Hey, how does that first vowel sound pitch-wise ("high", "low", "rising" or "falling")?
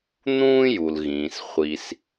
high